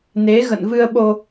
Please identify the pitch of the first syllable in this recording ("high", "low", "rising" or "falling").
rising